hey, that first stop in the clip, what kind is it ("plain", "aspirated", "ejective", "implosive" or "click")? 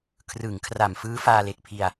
aspirated